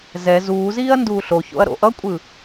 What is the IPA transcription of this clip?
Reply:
z ɛ z uː z iː ɐ̯ n d uː ɬ o ç o̰ ɐ̯ ɾ o̰ ʔ ʌ kʷʼ ɯ

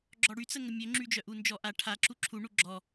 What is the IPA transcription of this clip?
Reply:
ɡ͡ǁ ɔ ɽ y t͡s ə ŋ ə mʲ ø ŋ͡ǁ y d͡ʒ œ ʔ u n d͡ʒ ɔ ʔ a ʈʰ a ǁ u ǁʰ u ɳ u ɡ͡ǁ ɔ

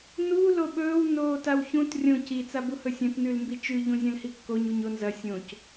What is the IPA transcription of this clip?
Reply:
n u l o ɓ ɵː w n oː t a w ç ũ t rʲ õ c i t͡s a b u h ɵ sʲ ɐ̃ t n ʉ l m b i t͡ʃ ʉ ʎ ũ zʲ ɐ̃ l h i kː o ɲ u ɲ o n z ɐ sʲ õ c

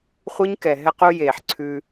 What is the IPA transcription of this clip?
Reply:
χʷ i˦ ɲ k ɛ˨ ɦ ɛ˧ q u˧ j eː˨ ħ ǀʰ ʉ˧

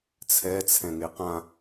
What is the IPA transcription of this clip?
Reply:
t͡sʰ ɛ t͡sʰ ɛ̃ ŋ e q ã

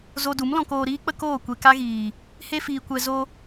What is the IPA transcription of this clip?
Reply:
z o˧ d u˨˦ m l ɔ̃˧ k oː˧ ɾ iː˦ k͡p ə˦ k oː˦˨ kʷ e˧ k a˦ ɣ iː˨ | h e˦ f iː˧ kʷ ɛ˧ z o˧

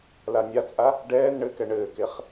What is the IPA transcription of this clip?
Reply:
l a nʲ a t͡sʼ a | ɖ ɛː n ɳ ɘ k ɛ ɳ ɘː k e χ

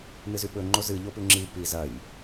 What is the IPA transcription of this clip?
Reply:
n ɨ z ʉ ɓ ɵ ŋ͡ǃ o z ɨ ʎ o p ʉ ŋ͡ǁ i p i z ɐ j

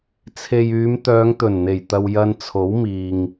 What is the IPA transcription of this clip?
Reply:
t͡sʰ e˨ j yː˨˧ m t̪ œː˨˧ ŋ t̪ ɵ˨˩ n n̪ e˨˩ j t̪ ɐ˨ w j ɐ˧ n t͡sʰ o˨˥ w m iː˨ ŋ

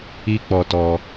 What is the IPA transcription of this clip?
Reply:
i˦ k͡p ɔ˧ t ɔ˧

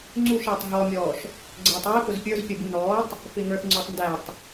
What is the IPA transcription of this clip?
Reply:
ŋ͡ǀ u ʃ ɪː tˤ ɦ ɔ mʲ ɔː ʃ | ɡ͡ǀ ɛː tˤ w i p ʊ z pʲ ə˞ z pʲ ə b u n ɔː tˤ | f ɪː ŋ ə˞ θ ŋ͡ǀ ʊː tˤ n d æ tˤ

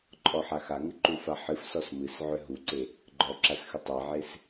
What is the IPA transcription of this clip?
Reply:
ǃʼ ɔ ħ a x a ŋ ɨ ǃ u f a ħ ɨ f s ɔ s m ɨ s ʕ ʏ ɦ u ǀ e | ɡ͡ǃ ɔ ǁ a s x ɨ tˤ ɛ ʕ e s

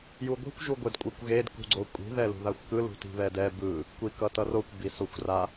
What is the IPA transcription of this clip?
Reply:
j u ɡʷ i̤ kʷ ʒ u ɡʷ e d kʷʼ ɯ kʷ ɣ e d k ṳ ɡ͡ǀ o kʷʼ i̤ ð ɛ l ṳ ð a xʷ k ɯ l ṳ t i̤ β ɛ d ɛ b ɯ | kʷ i k ʌ t ʌ r o kʷ b i s o xʷ r a

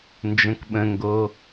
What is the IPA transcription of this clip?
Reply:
n d͡ʒ ə̃ k ɓ ə̃ ŋ ɡ o

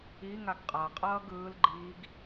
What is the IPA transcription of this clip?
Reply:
i ŋ a ɡ qʼ a qʼ ʌː ɡ ɯː l ɡ͡ǃ iː ɡ

